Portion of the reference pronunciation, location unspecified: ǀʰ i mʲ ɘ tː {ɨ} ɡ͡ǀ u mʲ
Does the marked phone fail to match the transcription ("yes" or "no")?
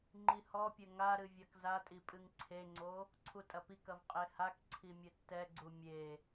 yes